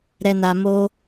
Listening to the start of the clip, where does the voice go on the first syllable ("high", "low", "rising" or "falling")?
low